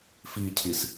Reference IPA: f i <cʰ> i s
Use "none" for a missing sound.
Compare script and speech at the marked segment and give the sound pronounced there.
cʰ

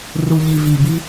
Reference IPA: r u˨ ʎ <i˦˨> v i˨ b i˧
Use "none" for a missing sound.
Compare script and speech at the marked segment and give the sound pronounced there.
i˨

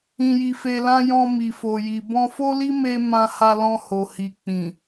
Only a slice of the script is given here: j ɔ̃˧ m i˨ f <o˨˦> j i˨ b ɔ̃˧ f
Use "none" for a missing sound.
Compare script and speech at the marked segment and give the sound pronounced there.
o˨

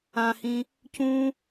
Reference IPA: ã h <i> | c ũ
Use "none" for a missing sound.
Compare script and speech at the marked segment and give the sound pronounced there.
ĩ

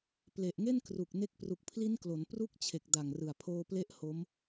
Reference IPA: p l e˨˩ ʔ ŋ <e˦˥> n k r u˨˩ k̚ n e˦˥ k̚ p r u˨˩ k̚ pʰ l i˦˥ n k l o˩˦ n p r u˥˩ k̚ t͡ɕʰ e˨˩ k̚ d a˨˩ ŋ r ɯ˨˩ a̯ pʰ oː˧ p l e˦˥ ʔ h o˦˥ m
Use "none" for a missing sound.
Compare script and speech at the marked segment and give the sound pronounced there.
e˥˩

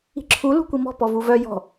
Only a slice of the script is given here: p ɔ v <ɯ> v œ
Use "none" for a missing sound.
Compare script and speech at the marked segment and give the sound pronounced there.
u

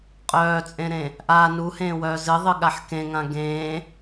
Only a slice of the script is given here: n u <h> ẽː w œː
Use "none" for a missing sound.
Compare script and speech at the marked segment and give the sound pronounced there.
h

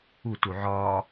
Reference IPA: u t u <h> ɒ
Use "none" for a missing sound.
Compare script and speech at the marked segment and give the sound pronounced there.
ʕ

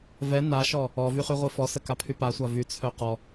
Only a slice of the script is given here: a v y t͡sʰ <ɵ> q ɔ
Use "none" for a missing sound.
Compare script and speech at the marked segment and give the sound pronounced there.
œ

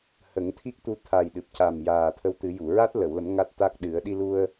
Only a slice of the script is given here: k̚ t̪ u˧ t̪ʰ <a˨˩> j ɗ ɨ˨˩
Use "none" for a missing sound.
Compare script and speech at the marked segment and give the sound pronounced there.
a˨˩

